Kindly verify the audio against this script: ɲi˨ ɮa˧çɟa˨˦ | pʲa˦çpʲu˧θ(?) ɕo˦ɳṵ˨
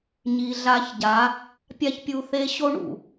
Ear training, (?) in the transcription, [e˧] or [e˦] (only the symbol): e˦